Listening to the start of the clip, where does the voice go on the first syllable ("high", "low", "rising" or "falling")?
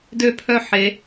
falling